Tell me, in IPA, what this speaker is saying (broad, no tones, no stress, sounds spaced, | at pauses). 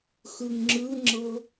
x ɯ ŋ ŋ͡ǁ ɯ ŋ͡ǁ ɤ